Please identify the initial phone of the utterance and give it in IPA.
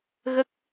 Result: ɣ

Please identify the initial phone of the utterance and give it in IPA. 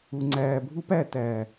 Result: u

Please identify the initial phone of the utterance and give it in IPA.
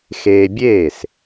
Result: x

